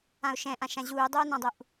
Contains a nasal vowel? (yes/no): yes